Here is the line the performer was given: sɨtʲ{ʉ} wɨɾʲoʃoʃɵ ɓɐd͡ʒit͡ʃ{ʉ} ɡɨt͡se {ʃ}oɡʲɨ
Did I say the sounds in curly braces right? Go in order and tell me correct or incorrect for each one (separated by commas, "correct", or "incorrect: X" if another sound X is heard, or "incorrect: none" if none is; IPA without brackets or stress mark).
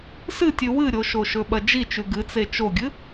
correct, correct, incorrect: t͡ʃ